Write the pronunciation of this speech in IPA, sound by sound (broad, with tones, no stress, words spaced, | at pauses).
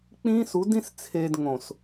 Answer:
k͡pĩː˦su˨˦dĩ˦s t͡sʰeː˨d ŋõ˨s